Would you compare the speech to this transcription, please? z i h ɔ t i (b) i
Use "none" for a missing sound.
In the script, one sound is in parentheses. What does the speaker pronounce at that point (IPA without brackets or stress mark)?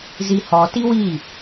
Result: w